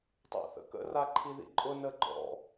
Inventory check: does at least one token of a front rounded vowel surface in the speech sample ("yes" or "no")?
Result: no